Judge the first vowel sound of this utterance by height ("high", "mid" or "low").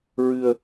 high